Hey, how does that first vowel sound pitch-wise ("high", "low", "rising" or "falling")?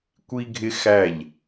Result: high